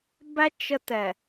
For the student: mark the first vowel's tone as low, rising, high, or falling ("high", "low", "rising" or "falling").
high